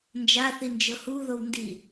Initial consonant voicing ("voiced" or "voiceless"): voiced